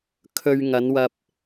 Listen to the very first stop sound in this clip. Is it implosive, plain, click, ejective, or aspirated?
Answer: aspirated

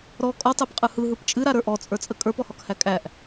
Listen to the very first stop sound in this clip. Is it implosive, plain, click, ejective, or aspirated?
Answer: ejective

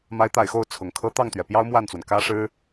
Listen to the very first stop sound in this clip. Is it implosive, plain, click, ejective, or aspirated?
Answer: plain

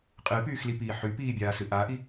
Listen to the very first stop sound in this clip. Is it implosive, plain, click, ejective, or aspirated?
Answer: ejective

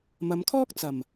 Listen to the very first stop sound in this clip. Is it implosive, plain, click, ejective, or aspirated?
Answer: aspirated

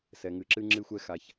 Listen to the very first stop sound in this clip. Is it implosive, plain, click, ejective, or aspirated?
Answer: click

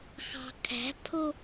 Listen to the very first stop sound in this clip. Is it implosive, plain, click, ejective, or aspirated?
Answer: aspirated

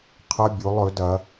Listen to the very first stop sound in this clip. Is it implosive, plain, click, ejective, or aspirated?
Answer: aspirated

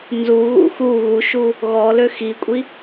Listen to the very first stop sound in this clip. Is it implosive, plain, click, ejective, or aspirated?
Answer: ejective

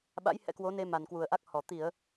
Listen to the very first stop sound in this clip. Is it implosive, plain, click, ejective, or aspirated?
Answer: implosive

